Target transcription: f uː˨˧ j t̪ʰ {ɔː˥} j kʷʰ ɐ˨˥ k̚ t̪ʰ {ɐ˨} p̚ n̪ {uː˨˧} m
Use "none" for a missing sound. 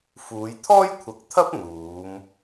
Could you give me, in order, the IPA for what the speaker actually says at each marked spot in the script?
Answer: ɔː˥, ɐ˥, uː˨˧

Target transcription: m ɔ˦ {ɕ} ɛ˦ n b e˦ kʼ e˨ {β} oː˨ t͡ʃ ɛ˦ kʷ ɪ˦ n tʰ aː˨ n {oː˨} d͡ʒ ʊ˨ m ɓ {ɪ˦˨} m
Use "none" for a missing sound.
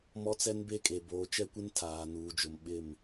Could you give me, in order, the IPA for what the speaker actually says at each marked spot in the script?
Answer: t͡s, b, uː˨, ɪ˦˨

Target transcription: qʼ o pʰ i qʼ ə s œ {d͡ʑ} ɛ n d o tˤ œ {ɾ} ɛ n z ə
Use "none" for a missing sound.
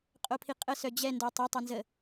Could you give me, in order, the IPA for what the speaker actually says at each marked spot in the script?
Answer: d͡ʑ, tˤ

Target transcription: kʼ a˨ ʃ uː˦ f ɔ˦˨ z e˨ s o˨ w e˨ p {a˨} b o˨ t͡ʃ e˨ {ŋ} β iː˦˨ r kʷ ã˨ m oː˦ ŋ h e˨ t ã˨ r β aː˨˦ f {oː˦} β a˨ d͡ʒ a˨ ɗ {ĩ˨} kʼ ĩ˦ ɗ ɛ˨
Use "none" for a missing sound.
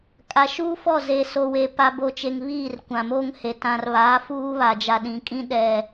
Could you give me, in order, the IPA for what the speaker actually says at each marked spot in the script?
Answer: a˨, ŋ, uː˦, ĩ˨

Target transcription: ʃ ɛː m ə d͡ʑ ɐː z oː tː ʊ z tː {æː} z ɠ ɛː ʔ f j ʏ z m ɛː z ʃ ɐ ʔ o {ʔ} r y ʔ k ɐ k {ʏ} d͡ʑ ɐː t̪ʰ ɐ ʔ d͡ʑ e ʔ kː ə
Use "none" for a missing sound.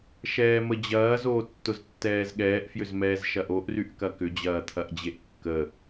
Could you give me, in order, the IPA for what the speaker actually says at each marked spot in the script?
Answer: ɛː, ʔ, ʏ

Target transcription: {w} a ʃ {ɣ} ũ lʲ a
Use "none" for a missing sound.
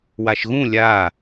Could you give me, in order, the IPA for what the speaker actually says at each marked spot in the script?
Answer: w, ɣ

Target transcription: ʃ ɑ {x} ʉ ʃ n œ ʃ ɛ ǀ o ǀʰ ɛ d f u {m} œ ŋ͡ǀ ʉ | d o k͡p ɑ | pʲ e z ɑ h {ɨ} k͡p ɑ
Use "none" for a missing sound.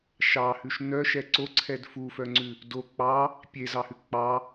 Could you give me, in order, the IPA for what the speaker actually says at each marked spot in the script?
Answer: h, f, ʉ

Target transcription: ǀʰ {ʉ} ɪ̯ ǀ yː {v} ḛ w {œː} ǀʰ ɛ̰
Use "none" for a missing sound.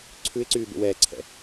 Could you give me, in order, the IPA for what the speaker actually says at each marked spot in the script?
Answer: ʉ, b, ɛː

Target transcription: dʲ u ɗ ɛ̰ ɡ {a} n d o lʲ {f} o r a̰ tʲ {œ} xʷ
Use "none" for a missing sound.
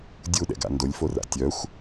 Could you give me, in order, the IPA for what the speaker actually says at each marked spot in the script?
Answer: a̰, f, œ

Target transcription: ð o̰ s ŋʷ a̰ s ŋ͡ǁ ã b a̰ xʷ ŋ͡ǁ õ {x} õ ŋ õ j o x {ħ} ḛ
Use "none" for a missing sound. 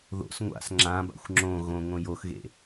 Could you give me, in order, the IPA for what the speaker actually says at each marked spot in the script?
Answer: ɣ, ɣ

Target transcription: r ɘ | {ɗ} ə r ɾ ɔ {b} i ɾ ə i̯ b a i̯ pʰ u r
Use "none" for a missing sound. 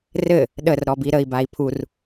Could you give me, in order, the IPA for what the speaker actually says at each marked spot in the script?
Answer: ɗ, b

